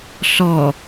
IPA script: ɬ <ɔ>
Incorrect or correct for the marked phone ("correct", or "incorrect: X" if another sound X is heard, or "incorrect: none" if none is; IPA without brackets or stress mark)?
correct